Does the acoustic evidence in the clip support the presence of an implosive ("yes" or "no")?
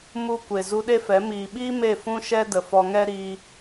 yes